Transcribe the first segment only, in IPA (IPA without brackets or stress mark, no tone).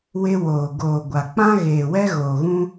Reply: w